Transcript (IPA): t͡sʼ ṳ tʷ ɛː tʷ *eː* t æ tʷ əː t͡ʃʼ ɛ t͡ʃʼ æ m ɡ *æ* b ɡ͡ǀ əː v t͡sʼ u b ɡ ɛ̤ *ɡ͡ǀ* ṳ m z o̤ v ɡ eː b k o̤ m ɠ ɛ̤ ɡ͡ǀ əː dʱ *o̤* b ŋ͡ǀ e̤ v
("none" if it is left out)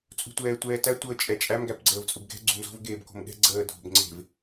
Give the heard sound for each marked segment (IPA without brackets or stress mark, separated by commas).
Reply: ɛː, æ, ɡ͡ǀ, o̤